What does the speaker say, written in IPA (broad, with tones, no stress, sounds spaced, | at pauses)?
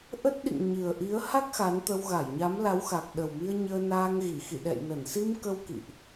ʔ ə˦˥ t̚ ɗ ḭ˧˨ ŋ ɲ ɨ˨˩ ə̯ ʔ i˨˦ ə̯ h a˦˥ k̚ x a˨˦ n t̪ ə˧ w ɣ a˧˩ j ɲ a˨˦ m l a˨˦ w x a˨˩ k̚ ɗ ə˨˩ w m i˧ ə̯ ɲ əː˧ n aː˧ ŋ ɣ i˧˩ x ḭ˧˨ ɗ ɛ̰˧˨ j n ə˧˩ n s i˧ m k ə˧ w k ḭ˧˨ ʔ